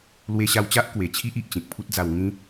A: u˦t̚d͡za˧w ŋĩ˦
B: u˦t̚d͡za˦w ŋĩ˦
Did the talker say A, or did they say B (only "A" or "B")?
A